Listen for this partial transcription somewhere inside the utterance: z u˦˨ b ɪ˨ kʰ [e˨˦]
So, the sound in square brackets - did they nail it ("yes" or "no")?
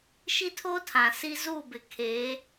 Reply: yes